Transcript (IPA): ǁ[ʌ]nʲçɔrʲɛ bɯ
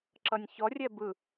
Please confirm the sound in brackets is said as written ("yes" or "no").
yes